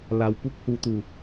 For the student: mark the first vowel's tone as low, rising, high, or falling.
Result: low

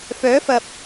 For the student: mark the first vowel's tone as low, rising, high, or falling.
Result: rising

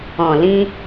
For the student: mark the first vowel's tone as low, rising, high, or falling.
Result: low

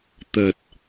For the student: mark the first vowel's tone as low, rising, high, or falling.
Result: low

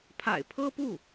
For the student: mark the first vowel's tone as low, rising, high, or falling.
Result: low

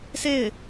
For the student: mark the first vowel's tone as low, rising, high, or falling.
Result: falling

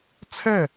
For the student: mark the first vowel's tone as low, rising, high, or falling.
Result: falling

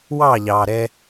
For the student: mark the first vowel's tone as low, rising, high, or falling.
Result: falling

